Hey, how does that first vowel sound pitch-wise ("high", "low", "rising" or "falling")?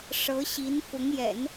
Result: rising